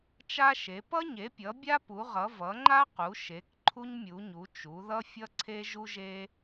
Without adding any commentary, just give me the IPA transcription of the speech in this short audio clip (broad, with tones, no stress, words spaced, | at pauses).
t͡ʃa˦ʃe˩˧ pʌ˦ɲe˩˧pʲʌ˩˧ bʲa˦pu˩˧ʁʌ˩˧ vʌ˩˧ŋ͡ǃa˦qu˩˧ʃe˩˧k ǃʰu˦ɲmʲu˩˧ɲu˩˧ t͡ʃu˩˧ðʌ˦ fʲʌ˦ǀʰe˦ʒu˦ʒe˦